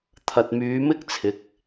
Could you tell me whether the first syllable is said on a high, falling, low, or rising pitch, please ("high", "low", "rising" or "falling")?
low